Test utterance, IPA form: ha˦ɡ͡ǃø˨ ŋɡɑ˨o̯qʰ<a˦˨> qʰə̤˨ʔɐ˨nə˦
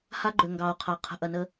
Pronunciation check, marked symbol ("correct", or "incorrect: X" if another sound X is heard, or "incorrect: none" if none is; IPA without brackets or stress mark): incorrect: a˨